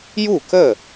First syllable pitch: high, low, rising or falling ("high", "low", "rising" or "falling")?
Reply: falling